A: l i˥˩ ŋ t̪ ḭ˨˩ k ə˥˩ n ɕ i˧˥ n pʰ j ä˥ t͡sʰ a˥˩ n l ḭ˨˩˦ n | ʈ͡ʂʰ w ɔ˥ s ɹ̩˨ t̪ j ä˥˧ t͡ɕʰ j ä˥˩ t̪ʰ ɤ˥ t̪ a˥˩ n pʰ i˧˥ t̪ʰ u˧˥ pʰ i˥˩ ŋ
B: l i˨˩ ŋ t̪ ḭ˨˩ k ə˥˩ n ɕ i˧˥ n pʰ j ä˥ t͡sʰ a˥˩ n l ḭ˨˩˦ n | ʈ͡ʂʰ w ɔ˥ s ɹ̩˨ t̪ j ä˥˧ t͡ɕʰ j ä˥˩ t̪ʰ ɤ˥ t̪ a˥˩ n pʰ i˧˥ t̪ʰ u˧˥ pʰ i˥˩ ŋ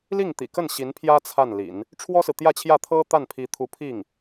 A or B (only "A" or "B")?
A